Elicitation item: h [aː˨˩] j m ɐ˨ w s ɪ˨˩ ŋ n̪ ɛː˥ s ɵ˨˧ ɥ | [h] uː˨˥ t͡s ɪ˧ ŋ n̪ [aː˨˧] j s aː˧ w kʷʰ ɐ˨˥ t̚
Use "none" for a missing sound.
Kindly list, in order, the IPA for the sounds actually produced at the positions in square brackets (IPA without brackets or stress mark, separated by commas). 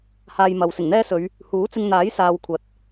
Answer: aː˧, h, aː˨˥